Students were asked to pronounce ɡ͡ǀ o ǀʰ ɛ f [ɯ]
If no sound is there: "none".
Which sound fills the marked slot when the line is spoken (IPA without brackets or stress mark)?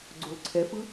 ɯ